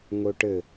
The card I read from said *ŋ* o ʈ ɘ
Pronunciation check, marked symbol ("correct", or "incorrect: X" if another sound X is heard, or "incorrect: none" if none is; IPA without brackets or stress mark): correct